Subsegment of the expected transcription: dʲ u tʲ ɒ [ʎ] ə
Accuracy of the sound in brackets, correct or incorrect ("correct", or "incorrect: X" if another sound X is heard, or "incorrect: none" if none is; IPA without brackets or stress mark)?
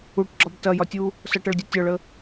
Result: incorrect: ɭ